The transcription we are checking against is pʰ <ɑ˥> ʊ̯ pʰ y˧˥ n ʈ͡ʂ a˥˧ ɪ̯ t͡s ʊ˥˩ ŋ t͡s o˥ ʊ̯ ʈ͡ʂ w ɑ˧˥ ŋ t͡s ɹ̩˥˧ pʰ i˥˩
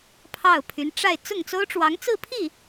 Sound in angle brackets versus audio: incorrect: ɑ˥˩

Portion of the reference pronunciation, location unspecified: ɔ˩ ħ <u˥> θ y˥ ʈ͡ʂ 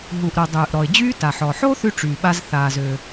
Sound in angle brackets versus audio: incorrect: o˥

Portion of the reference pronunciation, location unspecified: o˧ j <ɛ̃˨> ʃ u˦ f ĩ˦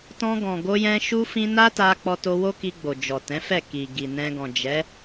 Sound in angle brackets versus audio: incorrect: ɛ̃˧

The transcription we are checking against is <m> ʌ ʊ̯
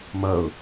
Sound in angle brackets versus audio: correct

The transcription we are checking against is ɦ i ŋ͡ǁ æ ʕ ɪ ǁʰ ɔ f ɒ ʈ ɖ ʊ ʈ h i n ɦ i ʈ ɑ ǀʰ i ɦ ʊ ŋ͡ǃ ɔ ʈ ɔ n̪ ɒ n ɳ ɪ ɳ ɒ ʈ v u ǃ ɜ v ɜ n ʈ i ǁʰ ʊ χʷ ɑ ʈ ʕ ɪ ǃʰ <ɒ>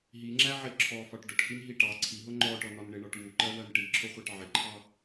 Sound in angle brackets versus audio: incorrect: ɑ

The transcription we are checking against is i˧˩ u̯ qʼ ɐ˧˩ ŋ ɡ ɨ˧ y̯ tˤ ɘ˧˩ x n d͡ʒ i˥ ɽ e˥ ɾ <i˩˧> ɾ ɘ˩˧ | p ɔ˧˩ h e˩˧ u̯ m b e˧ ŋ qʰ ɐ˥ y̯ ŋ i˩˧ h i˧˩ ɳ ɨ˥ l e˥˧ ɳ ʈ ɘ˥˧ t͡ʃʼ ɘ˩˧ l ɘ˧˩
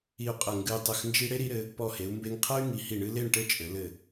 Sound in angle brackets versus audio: correct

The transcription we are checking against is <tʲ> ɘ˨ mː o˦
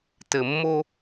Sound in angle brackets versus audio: incorrect: t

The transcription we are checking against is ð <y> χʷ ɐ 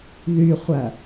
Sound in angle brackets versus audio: correct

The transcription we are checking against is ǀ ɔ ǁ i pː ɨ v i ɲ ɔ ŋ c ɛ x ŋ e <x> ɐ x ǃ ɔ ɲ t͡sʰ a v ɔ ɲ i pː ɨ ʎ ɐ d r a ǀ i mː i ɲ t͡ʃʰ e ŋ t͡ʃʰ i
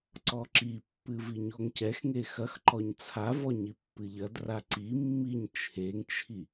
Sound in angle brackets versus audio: correct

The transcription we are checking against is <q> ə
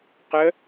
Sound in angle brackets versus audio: correct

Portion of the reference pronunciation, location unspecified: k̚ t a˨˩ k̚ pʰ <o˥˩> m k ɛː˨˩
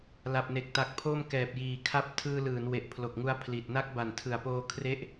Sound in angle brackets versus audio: correct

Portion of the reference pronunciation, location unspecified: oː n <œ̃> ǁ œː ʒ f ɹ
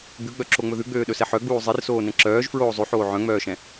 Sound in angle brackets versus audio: incorrect: ɛ̃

